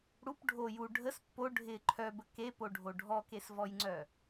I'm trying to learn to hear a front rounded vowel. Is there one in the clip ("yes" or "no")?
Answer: yes